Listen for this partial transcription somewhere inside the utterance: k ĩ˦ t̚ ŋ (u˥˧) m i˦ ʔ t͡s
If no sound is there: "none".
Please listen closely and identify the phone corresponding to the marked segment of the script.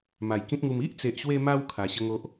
u˧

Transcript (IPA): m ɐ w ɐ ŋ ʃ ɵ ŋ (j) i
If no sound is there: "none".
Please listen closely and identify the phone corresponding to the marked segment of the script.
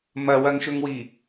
w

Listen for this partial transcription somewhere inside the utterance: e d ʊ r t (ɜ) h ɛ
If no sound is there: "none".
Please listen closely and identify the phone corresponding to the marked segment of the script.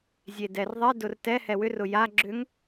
ɛ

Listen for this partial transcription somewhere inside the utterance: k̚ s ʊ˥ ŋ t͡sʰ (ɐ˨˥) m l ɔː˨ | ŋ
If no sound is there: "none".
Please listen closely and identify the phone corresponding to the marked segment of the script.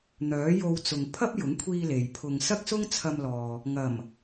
ɐ˧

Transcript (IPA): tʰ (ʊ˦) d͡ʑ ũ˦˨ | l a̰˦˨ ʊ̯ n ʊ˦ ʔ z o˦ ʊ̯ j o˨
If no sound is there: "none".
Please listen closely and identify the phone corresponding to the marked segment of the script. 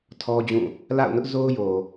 ɔ˦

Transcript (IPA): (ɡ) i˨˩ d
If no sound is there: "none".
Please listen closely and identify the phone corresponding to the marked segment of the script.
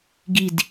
ɡ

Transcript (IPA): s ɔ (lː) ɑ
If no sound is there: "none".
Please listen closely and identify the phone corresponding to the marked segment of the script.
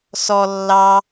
lː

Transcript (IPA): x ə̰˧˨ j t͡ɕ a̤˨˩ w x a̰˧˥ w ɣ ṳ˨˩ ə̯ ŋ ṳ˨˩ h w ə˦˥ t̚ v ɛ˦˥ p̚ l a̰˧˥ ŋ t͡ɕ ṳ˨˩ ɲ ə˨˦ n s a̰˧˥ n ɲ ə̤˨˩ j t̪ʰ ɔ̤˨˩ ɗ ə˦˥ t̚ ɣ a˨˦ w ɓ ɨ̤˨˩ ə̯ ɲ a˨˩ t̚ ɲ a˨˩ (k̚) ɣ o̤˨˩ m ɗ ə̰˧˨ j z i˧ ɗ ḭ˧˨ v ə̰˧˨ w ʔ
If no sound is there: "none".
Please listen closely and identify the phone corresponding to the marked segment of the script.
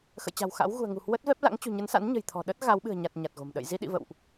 t̚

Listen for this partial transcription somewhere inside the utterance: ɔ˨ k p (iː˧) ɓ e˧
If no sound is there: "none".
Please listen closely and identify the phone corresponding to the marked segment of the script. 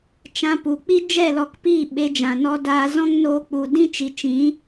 iː˦˨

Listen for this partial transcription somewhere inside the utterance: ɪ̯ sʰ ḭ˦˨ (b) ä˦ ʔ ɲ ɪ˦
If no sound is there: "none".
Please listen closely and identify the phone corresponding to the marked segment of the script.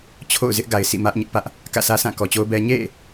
m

